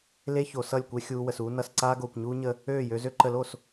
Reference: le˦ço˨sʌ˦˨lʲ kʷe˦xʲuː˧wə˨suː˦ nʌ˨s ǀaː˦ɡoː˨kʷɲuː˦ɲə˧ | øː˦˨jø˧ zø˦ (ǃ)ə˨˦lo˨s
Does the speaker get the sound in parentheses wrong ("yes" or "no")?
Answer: no